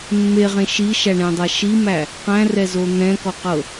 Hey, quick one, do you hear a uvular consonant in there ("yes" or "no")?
yes